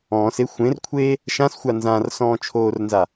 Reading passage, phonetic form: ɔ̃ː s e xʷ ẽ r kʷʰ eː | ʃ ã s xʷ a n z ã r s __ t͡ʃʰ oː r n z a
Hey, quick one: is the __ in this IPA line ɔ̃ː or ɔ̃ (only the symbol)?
ɔ̃ː